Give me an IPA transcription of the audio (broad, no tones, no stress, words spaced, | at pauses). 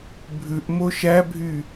bʱʉʔ moʃæbʱy